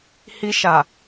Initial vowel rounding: unrounded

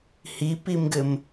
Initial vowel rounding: unrounded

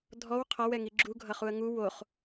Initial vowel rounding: rounded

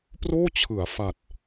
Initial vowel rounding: rounded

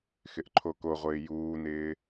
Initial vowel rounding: unrounded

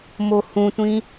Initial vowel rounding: rounded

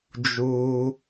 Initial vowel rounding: rounded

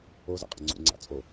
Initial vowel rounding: rounded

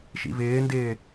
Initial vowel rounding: unrounded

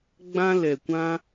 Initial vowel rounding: unrounded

